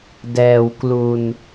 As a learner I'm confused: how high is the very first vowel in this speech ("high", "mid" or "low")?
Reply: mid